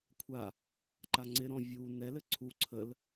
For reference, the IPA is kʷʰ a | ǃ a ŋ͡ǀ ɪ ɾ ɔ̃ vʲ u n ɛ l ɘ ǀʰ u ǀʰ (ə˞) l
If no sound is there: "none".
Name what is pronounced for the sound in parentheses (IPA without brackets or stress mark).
ə